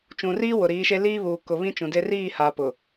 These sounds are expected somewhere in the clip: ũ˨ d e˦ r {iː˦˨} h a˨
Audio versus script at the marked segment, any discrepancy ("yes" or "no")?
no